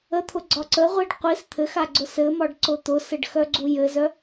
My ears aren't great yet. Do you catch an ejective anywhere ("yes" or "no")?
no